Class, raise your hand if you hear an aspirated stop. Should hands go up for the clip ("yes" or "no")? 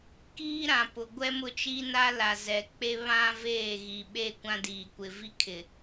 yes